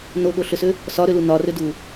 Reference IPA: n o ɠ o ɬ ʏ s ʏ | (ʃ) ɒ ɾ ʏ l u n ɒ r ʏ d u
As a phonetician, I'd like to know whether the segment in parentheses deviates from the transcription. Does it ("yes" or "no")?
yes